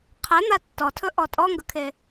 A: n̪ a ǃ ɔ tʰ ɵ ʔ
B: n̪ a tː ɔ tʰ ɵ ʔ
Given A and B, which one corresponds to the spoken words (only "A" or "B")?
B